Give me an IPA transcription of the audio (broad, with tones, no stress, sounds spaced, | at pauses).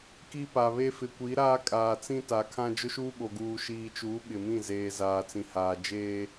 k i˦ p a˨ β e˦ f ɪ˨ kʷ i˨˦ ɾ aː˦ kʼ aː˨ t͡s ĩ˦ t a˨ kʰ ã˦ d͡ʒ ʊ˦ ʃ uː˦ ɓ o˨ ɡ uː˨ ʃ iː˨ t͡ʃ uː˨˦ ɓ ɪ˨ m ĩ˦˨ z eː˨ z aː˨ t͡s ĩ˨ h aː˨ d͡ʒ eː˦